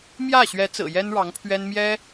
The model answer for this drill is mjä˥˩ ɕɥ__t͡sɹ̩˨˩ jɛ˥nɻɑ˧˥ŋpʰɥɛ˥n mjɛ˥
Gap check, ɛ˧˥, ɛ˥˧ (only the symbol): ɛ˧˥